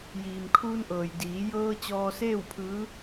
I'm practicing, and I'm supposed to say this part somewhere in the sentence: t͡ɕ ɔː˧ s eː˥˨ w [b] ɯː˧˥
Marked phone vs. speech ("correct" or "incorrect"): incorrect